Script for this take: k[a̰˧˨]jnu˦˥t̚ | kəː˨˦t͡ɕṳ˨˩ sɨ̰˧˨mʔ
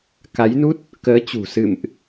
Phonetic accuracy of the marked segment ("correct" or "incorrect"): incorrect